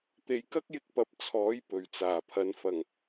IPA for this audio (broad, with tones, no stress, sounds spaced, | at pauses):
t̪ e˨ j k ɐ˥ k̚ j ɪ˧ k̚ p ɐ˨˥ p̚ t͡sʰ ɔː˨˥ j p ɵ˨˩ ɥ t͡s aː˨˩ pʰ ɐ˨˧ n f ɐ˨˩ ŋ